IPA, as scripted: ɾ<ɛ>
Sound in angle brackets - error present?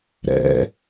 yes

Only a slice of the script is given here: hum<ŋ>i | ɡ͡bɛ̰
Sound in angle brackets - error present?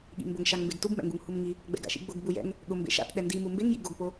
no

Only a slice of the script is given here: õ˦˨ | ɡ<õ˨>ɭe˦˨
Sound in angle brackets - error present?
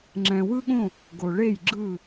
yes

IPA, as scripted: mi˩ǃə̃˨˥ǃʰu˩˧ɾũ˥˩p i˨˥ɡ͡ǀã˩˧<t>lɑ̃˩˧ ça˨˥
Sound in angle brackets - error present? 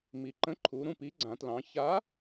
no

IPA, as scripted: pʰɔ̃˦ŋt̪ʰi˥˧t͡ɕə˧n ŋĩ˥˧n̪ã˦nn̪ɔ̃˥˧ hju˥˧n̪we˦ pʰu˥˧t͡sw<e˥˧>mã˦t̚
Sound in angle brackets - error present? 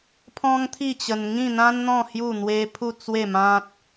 no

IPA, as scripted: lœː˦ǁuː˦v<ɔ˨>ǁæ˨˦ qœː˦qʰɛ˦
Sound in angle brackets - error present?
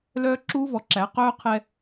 no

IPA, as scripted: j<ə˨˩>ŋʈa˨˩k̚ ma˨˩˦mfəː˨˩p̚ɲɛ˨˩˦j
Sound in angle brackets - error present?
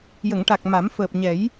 yes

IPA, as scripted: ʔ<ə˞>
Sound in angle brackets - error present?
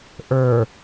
no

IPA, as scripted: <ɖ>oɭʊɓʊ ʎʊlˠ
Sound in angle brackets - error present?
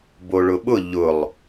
yes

